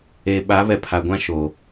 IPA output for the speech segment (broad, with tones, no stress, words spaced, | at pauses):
e˨ɓa˨˦ βɛ˨pʰa˨ɡʷã˦ʃo˨